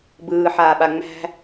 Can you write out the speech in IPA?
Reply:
bɯːħaːɓa ŋ͡mæ̤

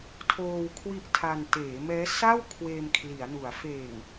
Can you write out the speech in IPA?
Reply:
tʰoː˧w kʰwi˥˩ʔtʰa˧n teː˩˦mɛː˦˥ sa˥˩w kʰweː˧mkʰli˩˦a̯nu˩˦a̯ feː˨˩ŋ

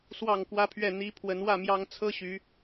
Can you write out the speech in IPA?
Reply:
swɑ˥˨ŋkwä˦pʰɥɛ˥˨ n̪i˨˦ pʰwə˨˦nwä˥˨mjɑ˦ŋ t͡sʰɤ˦ ɕy˨˦

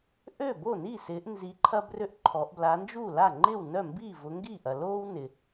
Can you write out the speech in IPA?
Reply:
ʔø˥˩bo˥˩ni˥˩ sɪː˨˦ʔnzi˨˦ ǃʰɐ˥brø˥˩ʔǃʰɔ˨˦ʔ bla˨˦nd͡ʒu˥˩la˥˩ ŋ͡ǃɪː˥˩wnœ˥˩mbiː˥˩ vʊ˨˦ŋɡiː˥˩ʔɐ˨loː˥w nɪ˨

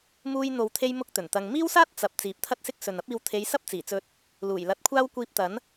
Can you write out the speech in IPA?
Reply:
muː˥j n̪o˨wt̪ʰe˧j mʊ˥k̚t̪ɵ˨˩nt̪ɐ˧ŋ miː˥wsaː˥t̚ t͡sɐ˨p̚ t͡siː˨p̚t̪ʰɐ˥t̚sɪ˥k̚ sɵ˨nɐ˥p̚iː˧w t̪ʰe˨˧jsɐ˥p̚ t͡siː˨˩t͡sɵ˧t̚ | luː˨˩j lɐ˨˥t̚kʷʰaː˥w kʷiː˧p̚t̪ɐ˨˥n

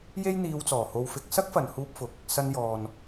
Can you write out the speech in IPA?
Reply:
je˥jn̪iː˧wt͡sɔː˨˩ ho˧wfɪ˧k̚ sɐ˥k̚fɐ˨nhuː˧p̚fʊ˨k̚ | sɐ˧n jɔː˨n

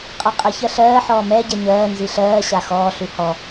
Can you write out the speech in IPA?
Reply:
qʼaqʼəçɜ ɬɜː ħɔːmɛɟɛ ɲɜː nziɬɜːɕa xɔːɬʉ hɔ

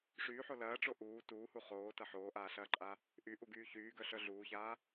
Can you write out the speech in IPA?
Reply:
ʂyːħo lɐːʈ͡ʂo ʔuː tuːhu χoːtɐ ħoːʔaːɬɐːǃʼa | ʔyʔuɡyː çyːɡœɬœ ɮuːçaː

